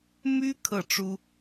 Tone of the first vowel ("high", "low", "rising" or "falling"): high